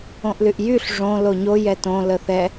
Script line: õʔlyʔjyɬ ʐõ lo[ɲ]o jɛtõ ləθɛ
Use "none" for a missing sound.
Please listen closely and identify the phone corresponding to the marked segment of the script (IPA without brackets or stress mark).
ɲ